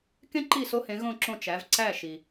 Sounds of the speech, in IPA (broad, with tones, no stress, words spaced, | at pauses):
kẽ˥ǃi˥˩ so˥hẽ˩˥ɣõ˥˩ǁõ˥˩ t͡ʃæ˩˥v ǀæ˥˩ ʃi˩